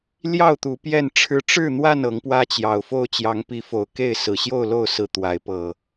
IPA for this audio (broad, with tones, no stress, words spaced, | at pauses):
ljɑ˥˨ʊ̯t̪u˨˦ pjɛ˥˨nʈ͡ʂʰɻ̩˦ ʈ͡ʂɻ̩˥˨n̪wa˥˨n ɤ˨˦ŋpwä˦t͡ɕjɑ˨˩ʊ̯ fo˥˨ʊ̯t͡ɕjɑ˨˦ŋpi˨˦fo˨˩ʊ̯ ke˥˨ɪ̯sɹ̩˨˩ ɕjo˥˨ʊ̯lo˥˨ʊ̯sɹ̩˨˩ t̪wa˨˦ɪ̯ pɤ˨˩